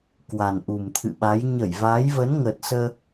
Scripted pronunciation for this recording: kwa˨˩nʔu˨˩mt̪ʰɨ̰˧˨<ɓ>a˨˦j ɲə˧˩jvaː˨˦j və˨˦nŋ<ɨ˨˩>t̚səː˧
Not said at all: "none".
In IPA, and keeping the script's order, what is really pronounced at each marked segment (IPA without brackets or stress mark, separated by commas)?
ɓ, ə˨˩